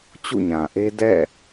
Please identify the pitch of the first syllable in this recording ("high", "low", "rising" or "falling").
falling